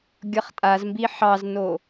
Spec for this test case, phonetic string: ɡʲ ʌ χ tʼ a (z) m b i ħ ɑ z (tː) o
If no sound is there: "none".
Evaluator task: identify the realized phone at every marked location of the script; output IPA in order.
z, n

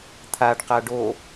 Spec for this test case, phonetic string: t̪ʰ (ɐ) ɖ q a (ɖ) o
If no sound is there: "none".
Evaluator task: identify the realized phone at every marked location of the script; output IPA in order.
a, ɖ

